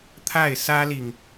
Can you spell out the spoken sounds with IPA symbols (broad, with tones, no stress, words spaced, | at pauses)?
t̪ʰa˥˩ɪ̯sä˥li˨ŋ